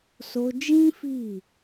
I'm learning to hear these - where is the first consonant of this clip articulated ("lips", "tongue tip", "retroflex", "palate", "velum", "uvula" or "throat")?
tongue tip